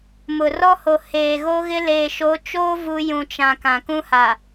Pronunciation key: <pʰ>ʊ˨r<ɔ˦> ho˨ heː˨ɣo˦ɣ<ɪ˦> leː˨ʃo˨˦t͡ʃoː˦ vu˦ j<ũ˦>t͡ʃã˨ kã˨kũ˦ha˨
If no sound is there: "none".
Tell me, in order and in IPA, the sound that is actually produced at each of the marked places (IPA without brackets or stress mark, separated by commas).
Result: m, ɔ˦, ɪ˦, ũ˨